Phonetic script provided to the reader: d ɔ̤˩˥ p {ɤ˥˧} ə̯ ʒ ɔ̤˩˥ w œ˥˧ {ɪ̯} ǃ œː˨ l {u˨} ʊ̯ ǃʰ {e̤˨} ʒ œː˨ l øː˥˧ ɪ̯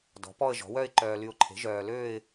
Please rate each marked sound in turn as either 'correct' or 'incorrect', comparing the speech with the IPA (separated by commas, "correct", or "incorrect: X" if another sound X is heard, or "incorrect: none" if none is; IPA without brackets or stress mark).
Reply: incorrect: ɔ˥˧, correct, incorrect: y˨, incorrect: e̤˩˥